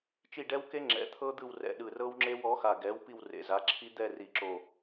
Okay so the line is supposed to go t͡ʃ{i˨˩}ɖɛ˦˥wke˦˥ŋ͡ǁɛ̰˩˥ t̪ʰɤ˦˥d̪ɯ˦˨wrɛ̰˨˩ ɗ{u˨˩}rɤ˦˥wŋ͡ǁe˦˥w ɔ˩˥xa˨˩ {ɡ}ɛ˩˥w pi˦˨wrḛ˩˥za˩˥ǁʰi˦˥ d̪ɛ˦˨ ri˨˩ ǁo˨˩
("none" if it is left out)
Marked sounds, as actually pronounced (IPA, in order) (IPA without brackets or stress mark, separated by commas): i˦˨, ɯ˨˩, ɡ